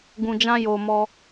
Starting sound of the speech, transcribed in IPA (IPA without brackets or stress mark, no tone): ɡ